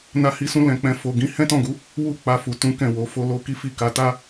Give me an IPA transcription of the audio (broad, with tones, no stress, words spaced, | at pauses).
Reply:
na˧hi˧sũ˧ lɛ̃˧k͡pɛ̃˧ fo˨ɡĩ˨˦ hɛ̃˦tɔ̃˦˨ɡu˨˦ | wu˦k͡pa˧ fu˨ tũ˨˦ kɛ̃˦˨wo˨˦fo˦ lo˦ ki˦fi˦˨ka˧ ta˦